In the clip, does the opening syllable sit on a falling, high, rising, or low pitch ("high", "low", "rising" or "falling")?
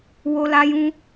high